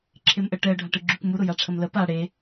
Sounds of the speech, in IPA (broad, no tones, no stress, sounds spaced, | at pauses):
ǁʰ e m ʔ ə ʈ ɛ ə̯ ɖʱ a ʈ ɯ ɡ͡ǁ y k m u ɾ ʊ j a ʈ͡ʂʰ ə m l ə p a ɽ e